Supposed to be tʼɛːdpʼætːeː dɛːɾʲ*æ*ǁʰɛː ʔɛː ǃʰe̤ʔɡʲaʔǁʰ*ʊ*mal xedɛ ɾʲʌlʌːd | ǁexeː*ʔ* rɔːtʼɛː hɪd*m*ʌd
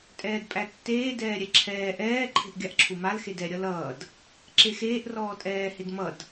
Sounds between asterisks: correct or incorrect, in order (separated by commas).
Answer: incorrect, incorrect, correct, correct